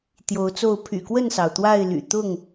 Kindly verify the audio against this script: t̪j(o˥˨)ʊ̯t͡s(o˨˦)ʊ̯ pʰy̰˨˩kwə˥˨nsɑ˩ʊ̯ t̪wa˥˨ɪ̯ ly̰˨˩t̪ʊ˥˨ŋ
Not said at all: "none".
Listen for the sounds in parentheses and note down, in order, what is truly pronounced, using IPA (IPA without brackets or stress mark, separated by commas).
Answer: o˨˦, o˥˨